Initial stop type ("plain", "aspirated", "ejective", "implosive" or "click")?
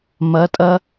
ejective